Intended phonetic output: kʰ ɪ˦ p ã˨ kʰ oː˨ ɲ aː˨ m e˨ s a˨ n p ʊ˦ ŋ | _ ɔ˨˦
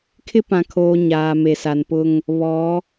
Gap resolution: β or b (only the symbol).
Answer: β